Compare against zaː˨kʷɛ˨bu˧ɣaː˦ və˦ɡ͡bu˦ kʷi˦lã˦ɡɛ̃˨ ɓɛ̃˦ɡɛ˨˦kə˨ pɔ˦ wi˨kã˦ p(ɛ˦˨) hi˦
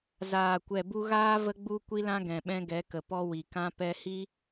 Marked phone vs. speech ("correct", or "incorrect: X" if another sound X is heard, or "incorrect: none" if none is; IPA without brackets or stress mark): incorrect: ɛ˦